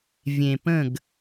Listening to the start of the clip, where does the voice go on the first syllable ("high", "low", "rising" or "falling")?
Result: low